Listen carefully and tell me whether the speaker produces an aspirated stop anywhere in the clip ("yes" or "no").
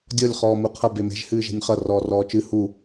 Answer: yes